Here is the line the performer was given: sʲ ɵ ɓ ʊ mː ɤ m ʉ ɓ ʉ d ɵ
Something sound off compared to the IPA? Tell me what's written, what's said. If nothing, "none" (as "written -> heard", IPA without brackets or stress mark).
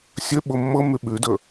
none